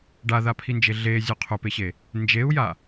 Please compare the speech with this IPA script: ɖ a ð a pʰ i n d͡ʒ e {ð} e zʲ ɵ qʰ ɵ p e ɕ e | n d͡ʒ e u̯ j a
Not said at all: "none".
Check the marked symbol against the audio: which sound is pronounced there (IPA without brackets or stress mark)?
ɮ